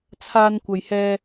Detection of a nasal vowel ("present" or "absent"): absent